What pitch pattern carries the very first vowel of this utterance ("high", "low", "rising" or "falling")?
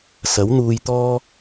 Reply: rising